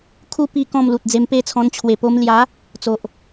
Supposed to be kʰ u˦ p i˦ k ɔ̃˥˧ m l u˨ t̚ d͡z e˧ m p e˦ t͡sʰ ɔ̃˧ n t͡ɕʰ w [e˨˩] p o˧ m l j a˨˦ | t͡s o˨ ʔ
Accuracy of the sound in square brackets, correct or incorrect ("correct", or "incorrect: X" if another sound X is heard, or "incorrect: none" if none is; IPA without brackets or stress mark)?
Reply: correct